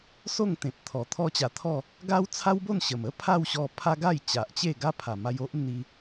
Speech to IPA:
s o˥˧ ŋ t̪ ẽ˨ p̚ t̪ʰ ɔ˨˩ t̪ʰ ɔ˦ t͡ɕ a˧ t̪ʰ ɔ˥˧ | ɡ a˦ w t͡sʰ a˦ w b o˥˧ n ɕ ə˨˩ m ə˦ pʰ a˥˧ w ɕ ɔ˧ pʰ a˦ ɡ a˥˧ j t͡ɕ a˨ ʔ t͡ɕ e˥˧ ɡ a˦ pʰ a˨˩ m a˧ j o˦ ʔ n̪ i˧

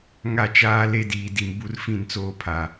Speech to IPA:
ŋ a˦˨ t͡ʃ aː˦ l e˦ d iː˨ d i˨ m b u˦ r f ĩ˦˨ n t͡s oː˦ pʰ a˨

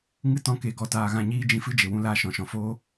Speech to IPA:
ŋ ɨ˦ t ɔ̃˧ k e˨ ɡ ɔ˨ t aː˨ ɣ ã˧ ɲ iː˦ d͡ʒ ĩ˦ f ɨ˦ d͡ʒ e˨ w ũ˦ l aː˧ ʃ ɔ̃˨ ʃ ɔ̃˨ f oː˦

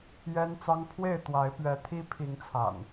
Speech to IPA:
j ɛ˦ n t͡s ɑ˦ ŋ pʰ w e˥˨ ɪ̯ t̪ w a˨˦ ɪ̯ p ɥ ɛ˨˦ t̪ʰ i˦ pʰ i˨˦ ŋ t͡sʰ a̰˨˩ n

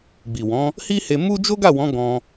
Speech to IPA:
ɡ͡b i˨ w ɔ̃˨˦ | h i˦ h e˧ m u˦ d͡ʒ o˦ ɡ a˦˨ w ɔ̃˨˦ ɡ ɔ̃˧

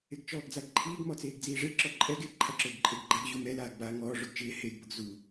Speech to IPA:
ɪ ɡ t͡ʃ ɔː ɡ d͡z a ɡ ǃʰ iː ɡ m ɔ t͡s eː ɡ d͡z iː ʐ e ǁ ɔ ǃʼ ɛ ɡ ɪ ǃʰ a ǁ ʊː ɡ ǃʼ e ɡ ɡ͡ǃ a ɡ ʑ u m ɛ l aː ɡ b aː ŋ ɔː ʐ ʊ ɡ t͡ʃ ɪː h e ɡ b ʊ ɡ z u

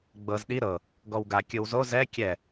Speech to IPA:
ɡ͡b ɤ z ɗ i ɾ ɤ | ɡ ɔ w ɡ a kʲ ɯ w z o z ɛ kʲ ɛ

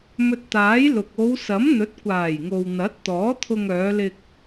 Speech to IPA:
m ɵ˧ t̚ t̪ aː˨˥ j l ʊ˨ k̚ o˨˧ w s ɐ˨˥ m n̪ ɵ˨˥ t̚ kʷ aː˨˩ j ŋ o˨ w n̪ ɐ˨˥ t̚ t̪ ɔː˨˥ t̪ʰ ʊ˧ ŋ œː˨˧ l ɪ˧ k̚

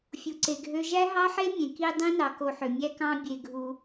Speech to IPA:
fʲ u˧ ǀ e˧ ɡʱ ø˦ ʒ æ˦ ɦ ɑ˦ ħ e˦ mʲ ẽ˨ k i˧ dˤ ẽ˦ n ɑ˨ k o˧ ħ ø˨ mʲ æ˦ k ɑ̃˦ bʲ e˧ ɡʱ u˧

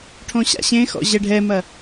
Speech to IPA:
ʈʰ õ ɕ a̰ ɕ ẽ x ɔ̰ ʑ ɛ ɖʱ ɛ m ɐ

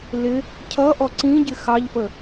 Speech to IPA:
l ɪ | cʰ ʌ ʔ ɔ ǀ ĩ ɟ ɪ x ɑ ʎ f ə

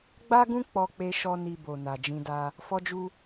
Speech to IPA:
ɡ͡b a˦ ɡ ũ˦ k͡p ɔ˧ k͡p e˧ ʃ ɔ˦ n i˧ b o˨ n a˨ d͡ʒ ĩ˧ d a˧ | f ɔ˧ d͡ʒ u˧

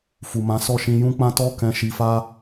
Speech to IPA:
f u˨ m ã˨˦ s ɔ˦˨ ʃ ĩ˧ j ũ˦ k͡p ã˦ t ɔ˦ k ɛ̃˧ ʃ i˧ f a˦

